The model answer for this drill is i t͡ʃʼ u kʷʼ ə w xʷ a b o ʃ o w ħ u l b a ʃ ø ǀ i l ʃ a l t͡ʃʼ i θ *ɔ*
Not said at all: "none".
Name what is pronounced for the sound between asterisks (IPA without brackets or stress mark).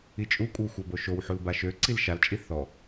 ɔ